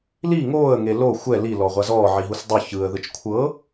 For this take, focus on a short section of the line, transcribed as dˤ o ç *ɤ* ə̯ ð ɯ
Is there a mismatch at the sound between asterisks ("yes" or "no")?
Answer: yes